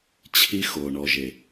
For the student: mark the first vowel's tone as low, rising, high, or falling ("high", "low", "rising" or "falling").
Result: high